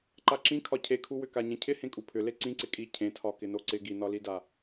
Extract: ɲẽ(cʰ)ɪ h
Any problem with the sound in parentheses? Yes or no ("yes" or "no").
no